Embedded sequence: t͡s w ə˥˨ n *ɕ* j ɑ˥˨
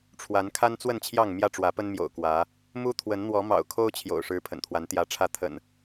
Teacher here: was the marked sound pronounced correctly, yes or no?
no